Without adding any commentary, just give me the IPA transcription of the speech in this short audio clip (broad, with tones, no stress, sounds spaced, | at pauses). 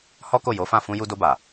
h ɔ˦ k o˦˨ j o˨˦ f ã˦˨ f ũ˧ j u˧ d o˧ b a˨